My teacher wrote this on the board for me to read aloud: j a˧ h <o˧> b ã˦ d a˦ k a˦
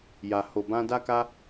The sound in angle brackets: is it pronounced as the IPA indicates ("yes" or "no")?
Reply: yes